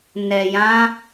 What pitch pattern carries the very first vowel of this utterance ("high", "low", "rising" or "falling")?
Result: low